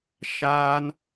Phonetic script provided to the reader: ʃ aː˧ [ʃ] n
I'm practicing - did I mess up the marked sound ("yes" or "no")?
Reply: yes